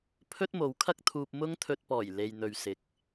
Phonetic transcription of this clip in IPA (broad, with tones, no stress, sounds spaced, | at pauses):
pʰ ɵ˥ t̚ m o˨˧ w kʰ ɐ˥ k̚ t̪ʰ uː˧ p̚ m ʊ˥ ŋ t̪ʰ ɵ˧ t̚ p ɔː˨˩ j l e˨ j n̪ ɵ˨ ɥ s ɪ˨˥ k̚